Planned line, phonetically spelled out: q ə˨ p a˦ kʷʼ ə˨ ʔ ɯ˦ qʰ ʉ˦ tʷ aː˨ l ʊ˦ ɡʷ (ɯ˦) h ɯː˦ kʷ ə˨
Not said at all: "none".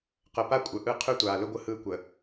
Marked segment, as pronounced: ɯ˦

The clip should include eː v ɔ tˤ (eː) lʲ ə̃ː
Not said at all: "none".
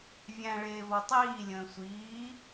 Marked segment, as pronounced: iː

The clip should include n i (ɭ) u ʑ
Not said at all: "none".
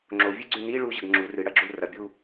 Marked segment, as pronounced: ɭ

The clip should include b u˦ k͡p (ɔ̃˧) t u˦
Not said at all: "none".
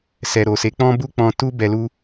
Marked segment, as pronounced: ɔ̃˧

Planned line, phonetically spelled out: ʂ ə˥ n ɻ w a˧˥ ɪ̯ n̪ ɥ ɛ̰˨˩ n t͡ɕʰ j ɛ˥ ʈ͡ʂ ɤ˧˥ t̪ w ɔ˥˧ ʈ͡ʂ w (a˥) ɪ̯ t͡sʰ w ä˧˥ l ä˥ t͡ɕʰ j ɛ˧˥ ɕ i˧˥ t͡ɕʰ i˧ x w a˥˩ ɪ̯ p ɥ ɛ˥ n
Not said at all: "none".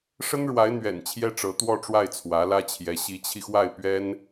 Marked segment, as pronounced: a˥˩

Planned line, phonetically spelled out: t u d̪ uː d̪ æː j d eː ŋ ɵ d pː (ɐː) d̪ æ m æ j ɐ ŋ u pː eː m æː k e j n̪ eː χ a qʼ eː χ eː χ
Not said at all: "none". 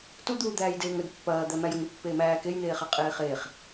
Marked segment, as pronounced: ɐː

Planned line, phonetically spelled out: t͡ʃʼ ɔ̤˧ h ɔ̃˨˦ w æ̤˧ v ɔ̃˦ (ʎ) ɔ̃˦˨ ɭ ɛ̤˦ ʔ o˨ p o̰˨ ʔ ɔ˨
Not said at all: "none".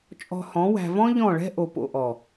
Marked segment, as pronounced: ʎ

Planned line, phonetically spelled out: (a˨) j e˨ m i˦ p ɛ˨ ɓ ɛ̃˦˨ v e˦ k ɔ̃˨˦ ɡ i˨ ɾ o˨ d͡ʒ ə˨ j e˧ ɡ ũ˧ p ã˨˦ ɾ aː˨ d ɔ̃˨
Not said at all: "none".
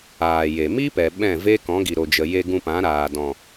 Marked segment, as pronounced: aː˨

